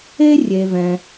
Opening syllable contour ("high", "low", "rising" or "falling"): high